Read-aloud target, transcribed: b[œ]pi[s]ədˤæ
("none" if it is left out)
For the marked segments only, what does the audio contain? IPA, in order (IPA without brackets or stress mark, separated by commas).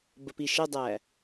ə, ʃ